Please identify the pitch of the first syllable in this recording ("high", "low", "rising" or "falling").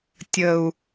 low